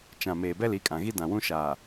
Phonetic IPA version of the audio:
t͡ʃ ã˨ m eː˨ b ɛ˦ l i˨˦ kʼ ã˨ ɣ i˦ d ã˨ w ũ˦ ʃ aː˨

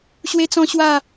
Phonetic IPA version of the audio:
ɕ w e˦ t͡s ɔ̃˦ ɕ w a˥˧

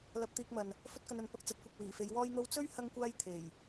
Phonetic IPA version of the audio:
l ɐ˧ p̚ t̪ iː˧ k̚ m ɐ˨ n | f ɵ˥ t̚ k ɐ˧ n ɐ˨˧ n p ɐ˧ k̚ t͡s ɐ˨˥ t̚ kʷ ɐ˨ k̚ w iː˨˩ f e˨˧ j w ɔː˥ j n̪ o˥ w t͡s ɵ˥ ɥ h ɐ˥ ŋ kʷ aː˥ j t̪ʰ e˨˩ j

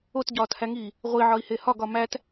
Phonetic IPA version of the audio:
o t ɟ ɒː t h æ ŋ iː | ʁʷ i ʕ ɒ i̯ h e h ɒ ɡ ɒ m æ t

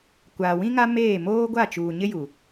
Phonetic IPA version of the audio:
kʷ aː˨ w ĩ˦ ŋ a˦ m eː˦˨ m oː˦ ɡʷ a˦˨ t͡ʃ uː˨ ɲ ɪ˦ j u˨

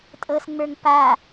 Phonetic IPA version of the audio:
tʼ ɤ s ŋ͡m ə˞ ŋ p a

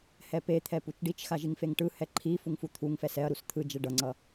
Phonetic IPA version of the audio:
h ɛ p e t̪ʰ ɛ p u t͡ʃ ɖ i t͡ʃ x a ʒ i ŋ f e ŋ ʈ ɯ h ɛ ǃʰ i f u ŋ f u t̪ʰ u ŋ f ɛ s ɛ ɐ̯ ɾ u s t̪ʰ ɯ d͡ʒ ɛ ɖ ʌ ŋ͡ǀ ʌ

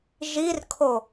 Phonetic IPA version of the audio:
ʒ i r kʰ o

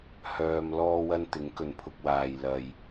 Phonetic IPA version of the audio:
h œː˧ m l ɔː˥ w ɐ˥ n t̪ ɪ˨˥ ŋ k ɵ˨ n pʰ ʊ˧ k̚ w aː˨ j l ɐ˨ j

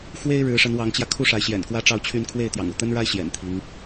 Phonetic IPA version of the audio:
x w e˥ ɪ̯ ɻ ɻ̩˧˥ ʂ ə˧˥ n w ɑ˧˥ ŋ t͡ɕ j ä˧ kʰ u˥˩ ʂ a˧˥ ɪ̯ ɕ j ɛ̰˨˩ n k w ä˥ ʈ͡ʂ ɑ˥˧ ʊ̯ t͡ɕʰ y˥˧ n kʰ w e˥˩ ɪ̯ t̪ j ɑ̰˨˩ ŋ u˥˩ t̪ ə˥ n ɻ a˥ ɪ̯ ɕ j ɛ̰˨˩ n t̪ʰ i˧˥ ŋ

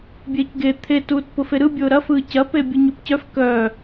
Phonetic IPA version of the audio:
bʲ eː c ɡ e t̪ʰ e t uː t p ʊ f e ɾ ɯ bʲ ʊː ɾ ɐ f ɯː c ɐ p e bʲ ɯ ɲ o p c œ f k œ

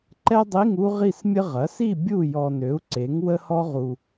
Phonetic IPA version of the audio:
ǃ ɛ˥ dˤ i˧˥˧ ŋ u˥ ʁ i˥˨ s mʲ ə˥ ʁ ɐ˩˥ s i˥˨ bʲ u˥˨ j ɔ˨ n ø˩˥ u̯ ǀ e˩˥ ŋ w ə˥ h ɔ˥ ʁ u˨

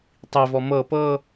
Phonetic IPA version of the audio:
tˤ i v ɔ m ɤ p ɤ

